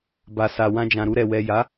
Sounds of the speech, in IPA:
ba˨sa˨ wã˧ d͡ʒã˨ɾu˧ɾɛ˨ wɛ˨ja˨˦

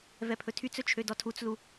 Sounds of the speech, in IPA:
vɛpʰɵtʰyt͡sɵ t͡ʃʰødɔtʰut͡slu

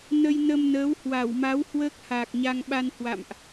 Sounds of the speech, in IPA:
nə˧jnə˧mnəː˨˦w hwa˧˩wma˨˦w hwəː˦˥k̚haː˨˩k̚ɲa˧ŋɓa˧n hwa̰˧˨mʔ

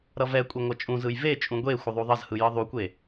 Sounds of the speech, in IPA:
ɾʌvɛkʷʼe ŋʷʌt͡ʃʼũzɯj vet͡ʃʼũ ɡʷe xʷʌðˤuðˤʌzhɯ jɯðˤukʷe

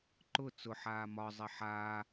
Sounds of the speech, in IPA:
ǃʊ t͡sʊ ħaːmɒzˤɪ ħaː

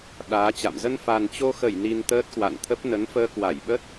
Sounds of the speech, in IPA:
ɗaː˨˦t͡ɕa̰˧˨m zə˧nfa˨˩nt͡ɕo˧xə˧˩j ni˧nt̪əː˦˥t̚kwa̰˧˨nt̪ʰə˦˥p̚ nə˨˦nfəː˧kwa˧˩jɓə˦˥t̚

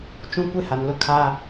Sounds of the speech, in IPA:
t͡ʃũ˦ kʷe˦ha˨nlʊ˦ kʰa˦

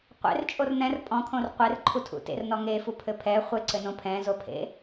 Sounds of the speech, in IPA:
qʷḛrt͡ʃʼor n̪ɛ̃r pʼɔ̃kʰõr qʷerǃʰutʰṵ tḛrnɔ ŋefupʰɘ pʰɛ χʷeǀɘnõ pʰɛ̃zopʰḛ

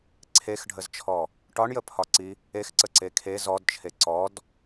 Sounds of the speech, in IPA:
ǀʰexɖʱəzt͡ʃʰɔ | ʈɒɳjəpʰɒǀi | exǀəǀe kʰe zɔdt͡ʃʰe ǀɔd

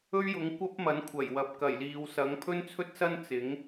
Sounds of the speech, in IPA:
ɵ˥ɥjʊ˨˥ŋ kʷɐ˥p̚mɐ˨˥n kʷʰɐ˨˩jwɐ˨p̚ kɐ˨˩jliː˨wsɐ˨˥ŋ pʰɵ˥nt͡sʰɵ˥t̚sɐ˥n t͡sɪ˨˥ŋ

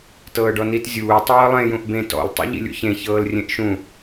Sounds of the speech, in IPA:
tɤːɖɔnit zʲuː tˤɤːlˠẽ jũʔbẽ tɔ̰l tˤṵʎḭlʲṵçẽ çɤːlrʲẽʔʃũ

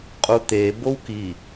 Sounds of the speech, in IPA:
qʼut̪e bowki

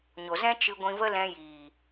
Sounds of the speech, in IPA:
ɲo˨zɛ̃˦ t͡ʃɨ˧ɡʷĩ˧və˦ lɛ̃˧jiː˨

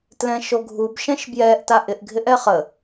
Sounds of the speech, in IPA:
tlɛ̃ʃoɡʱub ʃɛ̃ʃbjɛʔ taʔɪʔɡʱɪʔɛ χə

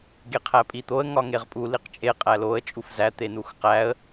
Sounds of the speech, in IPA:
ɡeqʰæpʼit̪oə̯ ŋɒŋeʁpʼu liqt͡ʃʼe qʼæloə̯ t͡ʃʼufzæ t̪enuxqæə̯

